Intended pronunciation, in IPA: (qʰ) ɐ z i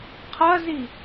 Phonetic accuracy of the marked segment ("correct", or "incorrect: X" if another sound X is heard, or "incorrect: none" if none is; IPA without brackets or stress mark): correct